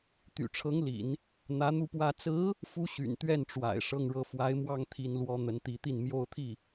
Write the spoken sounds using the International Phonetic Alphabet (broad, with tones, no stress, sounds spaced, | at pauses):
t̪ y̰˨˩ ʈ͡ʂʰ ɤ˧˥ ŋ l ḭ˨˩˦ n | n̪ ä˧˥ n̪ u˥˩ p w ä˥ t͡s ɹ̩˧˥ | f u˧˥ ɕ y̰˨˩ n t̪ ɥ ɛ˥˩ n ʈ͡ʂ w a̰˨˩ ɪ̯ ʂ ɤ˥˧ ŋ ɻ ɤ˥˩ f w a˧˥ ɪ̯ m w ɑ˥ ŋ t̪ʰ i˥ n l w ɔ˥ n̪ ə˧˥ n t̪ i˧˥ t̪ i˥˩ n m j o˥ ʊ̯ t̪ʰ i˥˩